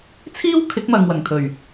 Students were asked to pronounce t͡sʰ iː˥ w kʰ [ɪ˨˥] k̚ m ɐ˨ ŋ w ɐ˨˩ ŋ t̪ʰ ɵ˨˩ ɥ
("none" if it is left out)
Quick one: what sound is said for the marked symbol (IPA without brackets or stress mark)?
ɪ˨˥